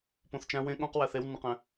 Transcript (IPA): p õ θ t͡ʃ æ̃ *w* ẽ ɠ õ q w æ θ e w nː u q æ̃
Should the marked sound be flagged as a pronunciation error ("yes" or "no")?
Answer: no